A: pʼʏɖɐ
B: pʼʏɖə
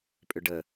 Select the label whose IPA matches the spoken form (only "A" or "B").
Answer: B